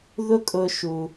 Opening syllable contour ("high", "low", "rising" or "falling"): high